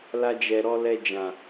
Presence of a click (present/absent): absent